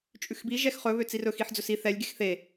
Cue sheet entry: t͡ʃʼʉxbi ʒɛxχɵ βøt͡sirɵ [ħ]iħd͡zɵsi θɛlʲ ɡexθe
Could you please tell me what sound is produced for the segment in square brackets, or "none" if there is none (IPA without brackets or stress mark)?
x